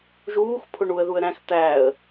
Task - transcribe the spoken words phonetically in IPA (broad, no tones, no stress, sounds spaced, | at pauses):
ʒ uː x pʰ ʊ ɳ u ə̯ ð u ə̯ ɾ æ̃ x t̪ æ ə̯